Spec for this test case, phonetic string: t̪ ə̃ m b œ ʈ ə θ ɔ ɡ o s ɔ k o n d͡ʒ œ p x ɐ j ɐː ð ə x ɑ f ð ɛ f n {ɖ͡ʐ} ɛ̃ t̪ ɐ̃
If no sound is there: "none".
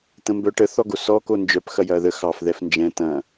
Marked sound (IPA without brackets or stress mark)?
d͡ʒ